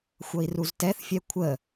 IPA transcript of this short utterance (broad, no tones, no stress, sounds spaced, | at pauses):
xʷ ʌ i̯ r u z t ɛ θ fʲ ɛ kʷʰ ə